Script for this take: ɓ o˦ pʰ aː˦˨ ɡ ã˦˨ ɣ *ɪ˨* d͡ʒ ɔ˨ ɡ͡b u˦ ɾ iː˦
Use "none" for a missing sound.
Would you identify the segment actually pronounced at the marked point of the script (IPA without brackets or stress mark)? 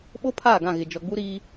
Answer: ɪ˨